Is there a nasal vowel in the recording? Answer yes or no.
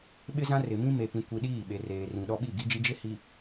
yes